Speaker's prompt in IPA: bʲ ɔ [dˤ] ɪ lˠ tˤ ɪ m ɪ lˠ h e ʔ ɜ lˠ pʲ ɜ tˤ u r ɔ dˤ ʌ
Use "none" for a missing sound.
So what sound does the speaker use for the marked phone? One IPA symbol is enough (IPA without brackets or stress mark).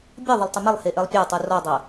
ðˤ